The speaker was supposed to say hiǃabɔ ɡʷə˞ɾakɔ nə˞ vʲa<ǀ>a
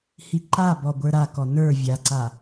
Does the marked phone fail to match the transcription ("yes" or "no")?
no